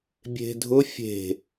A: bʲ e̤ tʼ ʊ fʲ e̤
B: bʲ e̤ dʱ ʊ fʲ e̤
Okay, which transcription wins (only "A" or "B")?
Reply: B